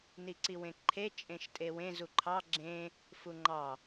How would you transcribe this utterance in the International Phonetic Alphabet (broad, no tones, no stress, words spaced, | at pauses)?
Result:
niǀiwẽǃʰe t͡ʃʼẽʃtʼewẽ zuǃʰɑ ɡ͡ǁẽ | fuŋ͡ǃɑ